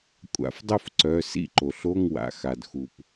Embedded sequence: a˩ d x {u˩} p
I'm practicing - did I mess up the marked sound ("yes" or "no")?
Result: no